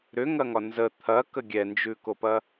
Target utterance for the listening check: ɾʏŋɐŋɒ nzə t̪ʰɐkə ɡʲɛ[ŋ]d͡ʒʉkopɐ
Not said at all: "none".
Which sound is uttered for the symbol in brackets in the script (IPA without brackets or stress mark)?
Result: n